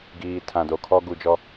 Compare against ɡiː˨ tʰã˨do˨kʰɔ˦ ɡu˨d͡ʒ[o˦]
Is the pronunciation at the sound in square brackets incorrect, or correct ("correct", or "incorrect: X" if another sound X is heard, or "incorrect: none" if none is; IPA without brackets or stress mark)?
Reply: incorrect: ɔ˦